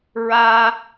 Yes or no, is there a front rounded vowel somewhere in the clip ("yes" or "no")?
no